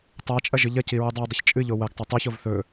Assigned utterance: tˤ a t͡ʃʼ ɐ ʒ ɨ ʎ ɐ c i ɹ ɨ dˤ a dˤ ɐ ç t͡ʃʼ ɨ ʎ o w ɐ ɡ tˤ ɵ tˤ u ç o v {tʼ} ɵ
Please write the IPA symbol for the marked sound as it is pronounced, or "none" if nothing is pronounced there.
θ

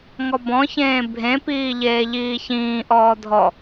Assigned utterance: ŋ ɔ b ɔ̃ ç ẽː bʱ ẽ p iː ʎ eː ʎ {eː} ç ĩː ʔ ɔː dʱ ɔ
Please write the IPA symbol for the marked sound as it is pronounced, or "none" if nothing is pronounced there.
iː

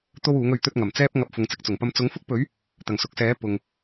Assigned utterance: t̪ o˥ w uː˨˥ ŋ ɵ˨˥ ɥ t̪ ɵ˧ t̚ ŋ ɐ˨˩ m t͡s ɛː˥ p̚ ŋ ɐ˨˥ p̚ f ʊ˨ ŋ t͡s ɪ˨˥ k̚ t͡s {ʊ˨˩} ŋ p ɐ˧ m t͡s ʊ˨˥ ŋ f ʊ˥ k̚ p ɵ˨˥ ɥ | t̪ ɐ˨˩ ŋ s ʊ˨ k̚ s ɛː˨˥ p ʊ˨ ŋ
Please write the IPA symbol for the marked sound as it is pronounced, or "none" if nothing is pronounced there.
ʊ˨˩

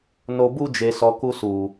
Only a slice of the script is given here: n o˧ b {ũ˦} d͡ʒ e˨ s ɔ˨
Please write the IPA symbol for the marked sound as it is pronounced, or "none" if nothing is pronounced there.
u˦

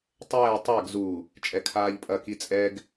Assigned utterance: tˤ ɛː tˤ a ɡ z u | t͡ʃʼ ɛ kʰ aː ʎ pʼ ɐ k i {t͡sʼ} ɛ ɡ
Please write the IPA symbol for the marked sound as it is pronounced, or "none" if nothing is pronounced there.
t͡sʼ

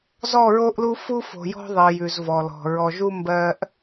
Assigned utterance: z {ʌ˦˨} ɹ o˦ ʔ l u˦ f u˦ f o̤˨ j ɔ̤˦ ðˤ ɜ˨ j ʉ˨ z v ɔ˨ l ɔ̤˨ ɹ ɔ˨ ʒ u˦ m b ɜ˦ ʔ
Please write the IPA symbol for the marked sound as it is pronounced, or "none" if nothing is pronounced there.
ɔ˦˨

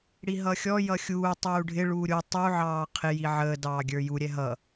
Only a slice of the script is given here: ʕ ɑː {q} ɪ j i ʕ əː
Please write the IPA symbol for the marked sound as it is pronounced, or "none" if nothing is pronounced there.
qʰ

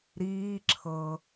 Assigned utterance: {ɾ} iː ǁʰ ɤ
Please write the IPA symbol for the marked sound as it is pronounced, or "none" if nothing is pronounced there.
ɾ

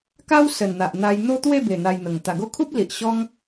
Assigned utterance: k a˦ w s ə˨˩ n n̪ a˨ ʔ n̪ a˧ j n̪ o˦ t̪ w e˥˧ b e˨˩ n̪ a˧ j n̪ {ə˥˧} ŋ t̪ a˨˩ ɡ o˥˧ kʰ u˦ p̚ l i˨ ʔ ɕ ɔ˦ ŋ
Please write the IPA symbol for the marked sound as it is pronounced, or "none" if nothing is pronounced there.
ə˨˩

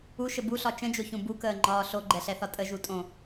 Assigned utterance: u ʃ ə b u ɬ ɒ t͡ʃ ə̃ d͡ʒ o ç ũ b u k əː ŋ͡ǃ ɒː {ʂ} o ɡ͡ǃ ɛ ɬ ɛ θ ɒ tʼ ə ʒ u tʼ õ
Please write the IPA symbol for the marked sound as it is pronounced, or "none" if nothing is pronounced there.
ɬ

